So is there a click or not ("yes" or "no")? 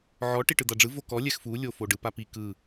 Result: no